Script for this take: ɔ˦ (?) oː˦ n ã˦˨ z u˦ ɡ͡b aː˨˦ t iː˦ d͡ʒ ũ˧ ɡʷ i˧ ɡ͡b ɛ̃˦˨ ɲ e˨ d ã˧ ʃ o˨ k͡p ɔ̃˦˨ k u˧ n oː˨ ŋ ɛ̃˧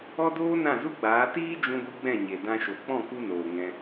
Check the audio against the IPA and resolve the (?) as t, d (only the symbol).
d